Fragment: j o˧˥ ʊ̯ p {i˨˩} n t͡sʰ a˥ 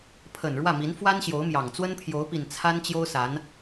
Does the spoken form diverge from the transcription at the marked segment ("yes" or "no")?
no